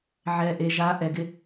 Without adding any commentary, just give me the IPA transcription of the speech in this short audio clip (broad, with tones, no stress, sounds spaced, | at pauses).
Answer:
ʕ ɛ˨ ʔ e˨ ʒ a˨˦ ʔ ɛ˨ ɡ ɪ˦